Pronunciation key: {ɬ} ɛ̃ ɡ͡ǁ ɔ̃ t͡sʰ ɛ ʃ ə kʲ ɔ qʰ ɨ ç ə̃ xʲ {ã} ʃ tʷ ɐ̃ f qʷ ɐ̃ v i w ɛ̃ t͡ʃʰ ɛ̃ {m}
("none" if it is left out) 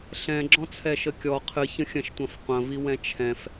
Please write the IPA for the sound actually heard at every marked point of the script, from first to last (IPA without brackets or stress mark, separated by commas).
ɬ, ɐ̃, f